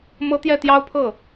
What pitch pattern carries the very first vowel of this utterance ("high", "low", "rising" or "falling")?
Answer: high